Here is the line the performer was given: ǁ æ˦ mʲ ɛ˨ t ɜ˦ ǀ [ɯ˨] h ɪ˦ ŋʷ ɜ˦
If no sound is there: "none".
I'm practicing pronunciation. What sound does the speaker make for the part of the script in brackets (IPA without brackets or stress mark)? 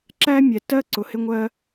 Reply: ʊ˨